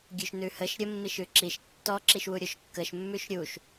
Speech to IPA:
ɡʲ ʉ ʃ n ʉ h ə ʃ ɾʲ ə mː i ʃ ʉ ǁ i ʃ tː ɔ ǁ i ʃ w u ɾʲ o ʃ kː ə ʃ mː ʉ ʃ ɾʲ u ʃ

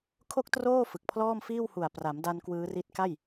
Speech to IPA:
kʰ o˥˩ k̚ t r oː˥˩ f ɯ˨˩ k̚ pʰ l ɔː˥˩ m f iː˥˩ w h u˨˩ a̯ p r a˩˦ m d a˧ n k w ɯː˦˥ r i˦˥ t̚ k a˥˩ j

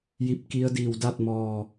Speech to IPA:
j i˧ p̚ k i˧˥ ə̯ d iː˧˩ w d a˥˨ t̚ m ɔː˧˩

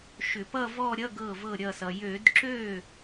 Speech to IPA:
ʃ ʏ˧˩˧ p ʌ˥˧ v ɔ˥˧ ɾʲ ʌ˧˥˧ ɡ ɤ˧˩ v ɤ˧˩ ɾʲ ʌ˧˩ s ʌ˩ j ø˧˩˧ d ǁ ø˥˩

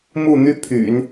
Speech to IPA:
m u˥˩ n̪ y˥ pʰ y̰˨˩˦ n

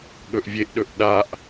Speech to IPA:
ɠ ɵ ʔ vʲ e ʔ ɗ ɵ ʔ ɗ a ʔ

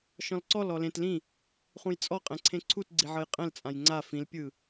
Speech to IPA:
ʃ ɔ̃ l ǀ ɔ l ɔ l ẽ t l ĩ | χ ũ j t͡sʼ ɔ qʼ ɛ̃ ǀʰ ẽ ǀʰ u t ɡ͡ǀ i ʕ ɤ j qʼ ɛ̃ l t͡sʼ ã j ŋ͡ǀ a f ĩ l pʲ ɯ

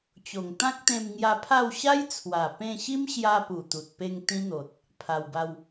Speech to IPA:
t͡ɕ o˨˩ ŋ t̪ ã˦ k̚ t̪ ẽ˧ m ŋ j a˧ pʰ a˥˧ w ɕ a˦ j t͡sʰ w a˨˩ p ẽ˧ ɕ i˦ m ɕ j a˧ p u˨˩ t̪ u˨ t̚ p e˧ ŋ t̪ ĩ˦ n̪ o˨ t̚ | pʰ a˧ w b a˦ w

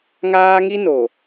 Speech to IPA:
ŋ aː˦ ŋ i˦ n o˨

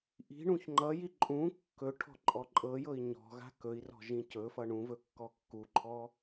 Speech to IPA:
ʔ i̤ ɳ ũ ç ŋ͡ǃ ʌ j i ǃʼ ũ kː ɵ ʈʰ ɔ̤ ǃʼ ɔ ǃʼ ɤ j ɤ i̯ ɲ ɔ̤ ɣ a̤ k ɵ i̯ r ɔ̤ ʒ ĩ c ɵ f ʌ ɳ ũ v ɵ kː ɔ kː u ǃʰ ɔ

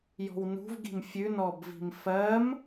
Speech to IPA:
j ɔ̤ w n ṳ v ɡ i̤ m fʲ ʉ n ɔ b v i̤ m f ɜ m

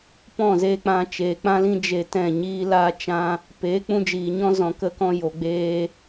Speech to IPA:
p ɔ̃˦˨ z eː˧ k͡p ã˧ t͡ʃ eː˨ k͡p ã˦ l ĩ˦ d͡ʒ e˧ t ɛ̃˦˨ ɲ iː˦ l aː˦ t͡ʃ ã˦ | p eː˨˦ k͡p ũ˧ d͡ʒ iː˨ ɲ ɔ̃˦ z ɔ̃˧ k ə˦ k ɔ̃˦ j o˧ ɡ͡b eː˦

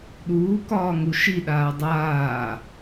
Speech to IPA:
ɗ uː k ɒː ŋ u ʃ i ɗ aː dˤ aː

